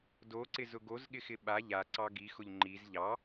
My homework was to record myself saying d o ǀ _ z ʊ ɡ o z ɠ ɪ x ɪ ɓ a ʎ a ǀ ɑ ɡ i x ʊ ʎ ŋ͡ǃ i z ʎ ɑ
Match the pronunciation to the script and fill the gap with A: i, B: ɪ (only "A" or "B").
B